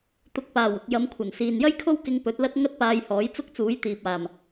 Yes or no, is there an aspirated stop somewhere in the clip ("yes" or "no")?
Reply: yes